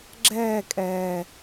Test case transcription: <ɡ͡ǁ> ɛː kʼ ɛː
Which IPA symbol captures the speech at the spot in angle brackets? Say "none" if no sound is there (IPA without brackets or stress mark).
ɡ͡ǁ